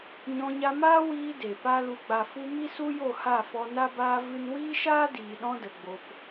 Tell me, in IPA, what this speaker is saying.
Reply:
ɲ ɔ̃˧ ɲ a˧ m aː˦ w iː˧ d e˨ p a˦ l u˧ ɡ͡b a˨ f u˧ m i˦ s u˦ j o˦˨ h a˦˨ f ɔ˧ n a˦ b aː˦ v ɨ˦ n w iː˦ ʃ aː˦ d iː˨ ɗ ɔ̃˦ d ə˨ ɡ͡b o˧ p

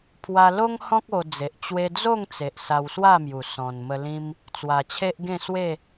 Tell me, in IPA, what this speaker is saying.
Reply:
pʰ w a˧ l o˦ ŋ h ɔ̃˦ k̚ o˧ d͡z e˨ ʔ t͡ɕ w e˦ d͡z o˥˧ ŋ t͡s e˨ ʔ s a˧ w s w a˥˧ m j u˨˩ s ɔ̃˨˩ n m ə˧ l ĩ˦ m | t͡s w a˨˩ t͡ɕʰ e˦ ʔ ɡ ẽ˥˧ s w e˥˧

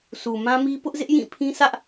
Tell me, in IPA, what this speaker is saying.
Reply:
s u˨ m ã˦ m i˦ p ʊ˦ ʔ z ɪ˦ ʔ j ĩ˦˨ pʰ ĩ˦ s ä˦ ʔ

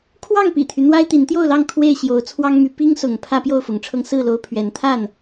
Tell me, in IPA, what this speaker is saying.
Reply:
kʰ w ɑ˥˨ ŋ p ḭ˨˩ t̪ʰ y˦ n̪ w a˦ ɪ̯ t̪ i˨˦ n t̪ j o˥˨ ʊ̯ l ɑ˥˨ ŋ kʰ w e˥˨ ɪ̯ ɕ j o˨˦ ʊ̯ t͡sʰ w ɑ˦ ŋ m y˨˦ p i˦ ŋ s ʊ˨˦ ŋ pʰ ä˦ p j o˥˨ ʊ̯ f ʊ˨˦ ŋ ʈ͡ʂʰ ɤ˦ ŋ s ɹ̩˥˨ l o˦ ʊ̯ pʰ ɥ ɛ˨˦ n t̪ʰ a˥˨ n

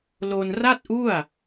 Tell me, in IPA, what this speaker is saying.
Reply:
l o˧ n r a˥˩ t̚ ʔ u˥˩ a̯

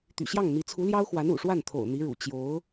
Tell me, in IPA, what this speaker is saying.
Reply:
t̪ y̰˨˩ ɕ j ɑ˥˩ ŋ n̪ i˧˥ t͡sʰ u˧˥ l j ɑ˥ ʊ̯ x w a˧˥ n ṵ˨˩ ʂ w a˥˩ n t̪ʰ o̰˨˩ ʊ̯ n̪ i˧˥ ɻ ṵ˨˩ t͡ɕ j o˧˥ ʊ̯

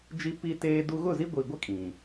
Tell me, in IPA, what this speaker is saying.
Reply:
d͡ʒ i˦ p i˦ t eː˦ d u˦ ɣ ʊ˦˨ z i˦ ɡʷ i˨ ɡʷ ɛ˦ kʼ ĩ˨

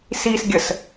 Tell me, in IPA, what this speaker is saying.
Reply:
s i s ɡʲ ə s

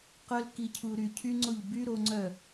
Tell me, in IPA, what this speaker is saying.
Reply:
q œ˧ l k i˨ cʰ u˨ ɾ y˨ cʰ y˦ ŋ͡ǀ o˦˨ ʎ b y˦ ɾ o˧ ŋ͡ǀ œ˦˨

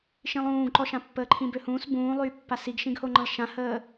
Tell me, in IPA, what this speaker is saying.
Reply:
ʃ ĩ lˠ ũː ɡ ǃ ɔ ʃ ã pː əː ǃʰ ĩ b ø h ũː s b ũː lˠ yː pː a s i ɡ ʃ ĩ ɡ h o ŋ͡ǃ ə̃ lˠ ʃ ã h əː

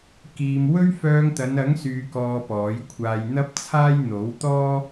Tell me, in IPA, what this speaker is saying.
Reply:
k iː˨ m w ɵ˥ ɥ f œː˧ ŋ t̪ ɐ˨˧ n ɐ˨˥ ŋ s yː˨ k ɔː˧ p ɔː˨˥ j kʷʰ aː˧ j n̪ ɐ˥ p̚ t͡sʰ aː˥ j n̪ o˨˥ w t̪ ɔː˥

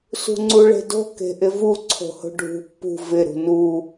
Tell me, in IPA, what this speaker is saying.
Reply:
s ṳ ŋ͡ǀ u ɭ e̤ d o̤ k e̤ ʔ ɪ v u ǀʰ o̤ h o̤ ɖʱ ṳ pː ṳ v ɪ ɾ ṳ n u

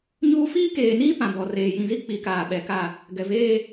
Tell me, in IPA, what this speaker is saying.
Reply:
ɲ uː˦ f iː˦ k eː˨ n iː˦ p ã˨ b ɔ˨ r eː˨ j ĩ˨ z i˦ k͡p i˨ k aː˨ ɓ ɛ˨ k a˦˨ | ɡ ɛ˨ v eː˦

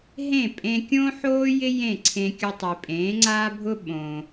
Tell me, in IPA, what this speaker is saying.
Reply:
ɦ ẽ˥˩ pʼ ẽ˧ kʲ õ˥ ħ oː˥ j ɪ˥ j ẽ˥˩ ǀʰ ẽ˧ kʲ ʊ˧ tˤ i˩ pʼ ẽː˩˥ ŋ͡ǀ aː˥ bʱ ʊ˥ ɓ õ˩

